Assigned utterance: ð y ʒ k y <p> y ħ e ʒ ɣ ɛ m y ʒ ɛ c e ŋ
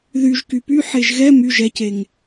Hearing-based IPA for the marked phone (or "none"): p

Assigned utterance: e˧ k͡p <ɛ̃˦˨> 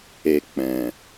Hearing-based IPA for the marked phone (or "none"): ɛ̃˨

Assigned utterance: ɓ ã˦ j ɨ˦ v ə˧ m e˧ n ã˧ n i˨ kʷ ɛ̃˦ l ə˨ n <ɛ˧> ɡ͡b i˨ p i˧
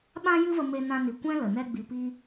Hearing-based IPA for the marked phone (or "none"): ɛ˧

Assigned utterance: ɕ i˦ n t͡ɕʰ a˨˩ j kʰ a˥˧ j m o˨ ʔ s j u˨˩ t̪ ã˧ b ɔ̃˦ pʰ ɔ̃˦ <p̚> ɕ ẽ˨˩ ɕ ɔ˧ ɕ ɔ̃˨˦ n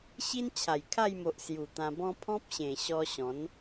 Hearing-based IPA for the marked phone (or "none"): p̚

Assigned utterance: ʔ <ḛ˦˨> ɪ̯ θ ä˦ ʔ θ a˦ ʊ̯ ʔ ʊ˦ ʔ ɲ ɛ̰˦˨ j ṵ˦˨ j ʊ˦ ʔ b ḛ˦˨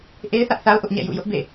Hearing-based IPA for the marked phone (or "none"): e˦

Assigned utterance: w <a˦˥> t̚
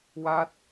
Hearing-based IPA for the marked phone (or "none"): a˦˥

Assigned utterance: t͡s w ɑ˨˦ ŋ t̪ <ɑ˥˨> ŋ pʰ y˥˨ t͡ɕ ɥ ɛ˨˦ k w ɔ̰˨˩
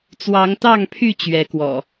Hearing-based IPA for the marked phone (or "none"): ɑ˥˨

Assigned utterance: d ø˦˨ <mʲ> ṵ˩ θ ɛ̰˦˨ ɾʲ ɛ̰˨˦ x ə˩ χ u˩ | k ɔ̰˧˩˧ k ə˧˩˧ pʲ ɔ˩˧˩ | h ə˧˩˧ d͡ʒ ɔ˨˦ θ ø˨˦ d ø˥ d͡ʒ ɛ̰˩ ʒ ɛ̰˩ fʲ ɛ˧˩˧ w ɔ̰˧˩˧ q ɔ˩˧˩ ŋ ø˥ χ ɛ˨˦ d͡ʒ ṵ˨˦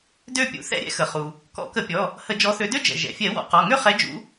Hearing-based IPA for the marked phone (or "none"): pʲ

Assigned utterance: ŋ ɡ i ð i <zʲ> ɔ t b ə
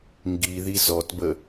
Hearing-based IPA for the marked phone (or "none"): z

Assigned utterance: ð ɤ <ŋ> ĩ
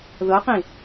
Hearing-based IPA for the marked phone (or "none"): q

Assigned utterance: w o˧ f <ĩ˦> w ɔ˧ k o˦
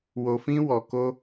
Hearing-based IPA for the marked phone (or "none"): ĩ˦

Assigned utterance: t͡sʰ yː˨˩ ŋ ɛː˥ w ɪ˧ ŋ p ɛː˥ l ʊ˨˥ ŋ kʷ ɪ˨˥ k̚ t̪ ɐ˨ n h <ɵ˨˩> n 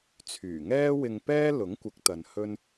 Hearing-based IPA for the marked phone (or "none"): ɵ˥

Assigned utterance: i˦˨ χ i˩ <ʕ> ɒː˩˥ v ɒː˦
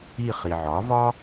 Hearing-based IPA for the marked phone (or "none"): ʕ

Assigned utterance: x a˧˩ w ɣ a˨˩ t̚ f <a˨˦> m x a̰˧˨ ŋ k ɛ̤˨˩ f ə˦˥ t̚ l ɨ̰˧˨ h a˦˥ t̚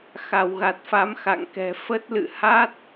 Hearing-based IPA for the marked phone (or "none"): a˨˦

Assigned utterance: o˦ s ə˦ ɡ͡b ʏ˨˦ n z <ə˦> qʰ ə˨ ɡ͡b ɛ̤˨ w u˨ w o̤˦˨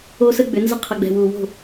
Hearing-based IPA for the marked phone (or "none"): ə˦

